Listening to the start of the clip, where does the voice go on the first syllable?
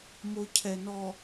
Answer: low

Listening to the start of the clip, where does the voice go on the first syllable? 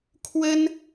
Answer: high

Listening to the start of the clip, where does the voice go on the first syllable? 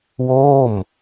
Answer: falling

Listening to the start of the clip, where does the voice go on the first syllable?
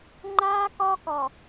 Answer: high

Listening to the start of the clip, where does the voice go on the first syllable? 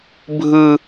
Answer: high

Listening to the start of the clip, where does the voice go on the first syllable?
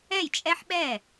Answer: falling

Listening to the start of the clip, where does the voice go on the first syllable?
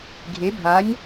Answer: rising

